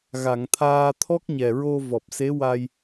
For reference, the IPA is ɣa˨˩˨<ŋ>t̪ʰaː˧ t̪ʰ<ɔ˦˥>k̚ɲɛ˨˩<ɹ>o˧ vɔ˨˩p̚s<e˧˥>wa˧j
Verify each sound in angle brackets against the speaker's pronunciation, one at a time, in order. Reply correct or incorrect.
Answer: correct, correct, correct, correct

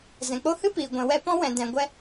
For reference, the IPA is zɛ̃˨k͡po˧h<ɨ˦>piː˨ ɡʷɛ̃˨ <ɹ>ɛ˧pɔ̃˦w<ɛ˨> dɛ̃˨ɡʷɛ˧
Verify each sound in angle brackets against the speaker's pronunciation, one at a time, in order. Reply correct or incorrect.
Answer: correct, incorrect: w, incorrect: ɛ̃˨

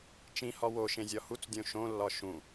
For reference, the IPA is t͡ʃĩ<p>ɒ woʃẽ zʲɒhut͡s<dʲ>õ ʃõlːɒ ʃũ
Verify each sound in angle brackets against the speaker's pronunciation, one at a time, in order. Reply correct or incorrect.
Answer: incorrect: h, correct

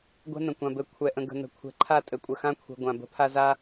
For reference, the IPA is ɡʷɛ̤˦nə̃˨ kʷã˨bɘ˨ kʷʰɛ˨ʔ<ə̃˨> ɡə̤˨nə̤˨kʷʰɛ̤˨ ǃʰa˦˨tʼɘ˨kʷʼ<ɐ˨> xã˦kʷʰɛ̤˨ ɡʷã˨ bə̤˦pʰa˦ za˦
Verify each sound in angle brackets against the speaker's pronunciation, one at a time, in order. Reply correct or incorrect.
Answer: correct, incorrect: ə˨

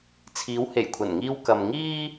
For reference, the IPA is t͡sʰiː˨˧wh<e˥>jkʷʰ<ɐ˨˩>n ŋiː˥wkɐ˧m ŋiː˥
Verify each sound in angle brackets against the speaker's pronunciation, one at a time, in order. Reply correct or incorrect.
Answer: incorrect: e˨˩, correct

